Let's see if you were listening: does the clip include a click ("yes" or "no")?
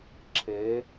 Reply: yes